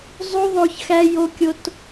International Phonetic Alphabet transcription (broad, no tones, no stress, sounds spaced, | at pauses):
zˤ u ðˤ o ç x æ j o kʲ o t